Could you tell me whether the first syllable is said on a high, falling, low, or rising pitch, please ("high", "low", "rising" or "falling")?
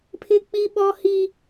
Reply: high